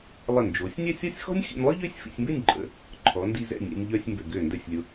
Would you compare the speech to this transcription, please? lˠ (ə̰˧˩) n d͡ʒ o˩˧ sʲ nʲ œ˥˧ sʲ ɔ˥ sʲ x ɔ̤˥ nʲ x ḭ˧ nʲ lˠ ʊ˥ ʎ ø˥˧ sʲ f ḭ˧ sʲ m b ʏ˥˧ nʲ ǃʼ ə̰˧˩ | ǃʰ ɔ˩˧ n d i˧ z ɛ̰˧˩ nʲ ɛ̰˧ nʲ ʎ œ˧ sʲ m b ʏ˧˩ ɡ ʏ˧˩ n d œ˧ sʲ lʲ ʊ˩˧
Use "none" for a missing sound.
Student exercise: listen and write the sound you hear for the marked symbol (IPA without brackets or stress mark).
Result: ə˧˩